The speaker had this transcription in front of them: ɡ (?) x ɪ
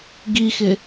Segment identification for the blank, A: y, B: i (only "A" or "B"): B